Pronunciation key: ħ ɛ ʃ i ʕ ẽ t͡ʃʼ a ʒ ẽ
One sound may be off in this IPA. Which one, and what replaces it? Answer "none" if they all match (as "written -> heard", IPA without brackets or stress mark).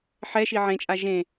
none